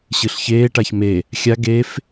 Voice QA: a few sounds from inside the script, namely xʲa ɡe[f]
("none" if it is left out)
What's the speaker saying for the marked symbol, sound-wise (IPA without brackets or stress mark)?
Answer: f